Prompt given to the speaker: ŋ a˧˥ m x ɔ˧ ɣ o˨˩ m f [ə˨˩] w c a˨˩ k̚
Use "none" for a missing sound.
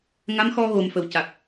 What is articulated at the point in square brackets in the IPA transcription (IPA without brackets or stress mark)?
ə˨˩